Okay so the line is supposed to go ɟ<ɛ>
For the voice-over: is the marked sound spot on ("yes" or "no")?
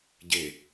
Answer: no